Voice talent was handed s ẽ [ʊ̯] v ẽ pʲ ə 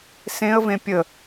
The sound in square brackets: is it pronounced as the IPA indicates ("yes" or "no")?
no